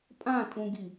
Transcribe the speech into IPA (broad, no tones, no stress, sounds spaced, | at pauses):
pʼ ã tʼ ũ ɡ i